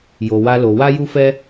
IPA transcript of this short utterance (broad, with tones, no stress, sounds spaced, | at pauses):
j o˧ w a˦ l o˧ w a˦ j u˦ f ɛ˦